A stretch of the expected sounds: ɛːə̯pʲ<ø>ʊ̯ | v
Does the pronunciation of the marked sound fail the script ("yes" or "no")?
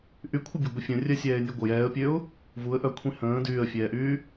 no